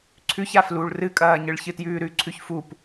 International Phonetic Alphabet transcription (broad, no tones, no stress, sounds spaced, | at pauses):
ǀʰ ʉ ç a f l u ɭ r ɨ kʼ ɐː ɲ ɨ ɭ ç ɨ t j ʉː ɾ ʉ ǀʰ ʉ ç f u p